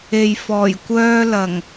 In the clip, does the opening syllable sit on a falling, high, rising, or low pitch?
low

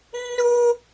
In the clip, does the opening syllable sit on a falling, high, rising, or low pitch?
high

